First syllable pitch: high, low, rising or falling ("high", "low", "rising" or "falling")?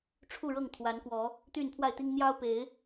falling